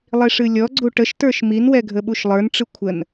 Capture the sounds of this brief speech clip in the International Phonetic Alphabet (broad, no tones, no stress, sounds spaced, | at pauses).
lˠ i ʂ ɨ lʲ ɔ ɡ͡ǀ u ʈ ə ʃ t ə˞ ʃ m i n w ɛ ɡʱ ə ɓ u ʃ lˠ ə˞ n ʈ͡ʂ ɨ kʷʰ ə n